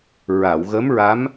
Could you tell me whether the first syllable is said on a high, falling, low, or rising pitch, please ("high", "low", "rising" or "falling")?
low